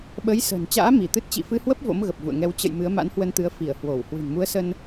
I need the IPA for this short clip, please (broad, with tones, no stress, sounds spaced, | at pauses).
ɓ ə˨˦ j s ə̤ː˨˩ n t͡ɕ a̰ː˧˥ m i˧˩ t̪ ɨ˦˥ t̚ t͡ɕ ḭ˧˨ f ɨ˧ h w ə˦˥ p̚ v o̰˧˥ m ɣ ə˨˩ p̚ v ṵ˧˨ ə̯ ŋ ɛ˧ w t͡ɕ ə̰˧˨ j m ɨ˨˦ ə̯ m a̰˧˥ n h w ə˧ n t̪ ɨ˨˦ ə̯ f i˧˩ ə̯ h w o˧˩ w h w ɨ̤˨˩ n m u˨˦ ə̯ s ə˧ n